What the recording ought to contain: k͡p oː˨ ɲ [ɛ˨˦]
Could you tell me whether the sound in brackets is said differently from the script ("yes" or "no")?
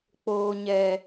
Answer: yes